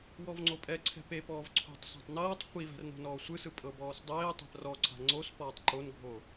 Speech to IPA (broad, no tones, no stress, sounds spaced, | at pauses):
w ɔ v ŋ͡ǀ o pʼ ɛ ǀʰ ɛ̤ p e p ɔː v ǀʰ o̤ tˤ s a̤ tˤ n ɤː tˤ χʷ i v ɛ̤ r n o̤ n ɔː sʷ ɯ s ɯ pʼ ɤ b ɔː s dˤ eː tˤ ɛ̤ p r ɔ ǀʰ a̤ ŋ͡ǀ o s p ɔː tˤ ǃ o n ɡʱ o